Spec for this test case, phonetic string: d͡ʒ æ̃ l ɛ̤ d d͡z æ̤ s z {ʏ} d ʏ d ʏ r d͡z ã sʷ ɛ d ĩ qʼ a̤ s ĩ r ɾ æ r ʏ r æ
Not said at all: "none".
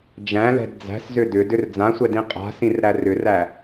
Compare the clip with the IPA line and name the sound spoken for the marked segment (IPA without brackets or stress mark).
ʏ